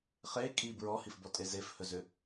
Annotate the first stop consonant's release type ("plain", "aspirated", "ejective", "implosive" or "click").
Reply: ejective